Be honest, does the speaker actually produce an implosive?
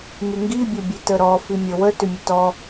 no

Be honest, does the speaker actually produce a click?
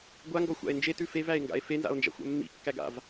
no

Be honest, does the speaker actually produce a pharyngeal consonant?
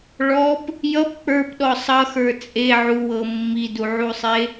yes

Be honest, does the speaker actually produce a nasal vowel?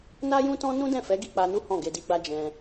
yes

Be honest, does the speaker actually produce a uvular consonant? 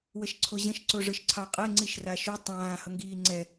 yes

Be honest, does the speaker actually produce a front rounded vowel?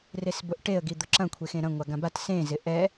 no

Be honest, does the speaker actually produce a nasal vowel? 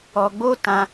yes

